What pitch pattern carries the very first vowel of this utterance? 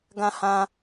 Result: high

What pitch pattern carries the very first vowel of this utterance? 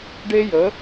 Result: high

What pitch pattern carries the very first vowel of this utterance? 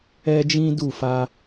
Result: high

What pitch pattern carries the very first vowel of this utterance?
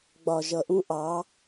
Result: low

